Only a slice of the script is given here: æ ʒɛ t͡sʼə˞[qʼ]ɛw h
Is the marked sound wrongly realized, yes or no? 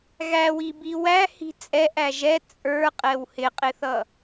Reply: no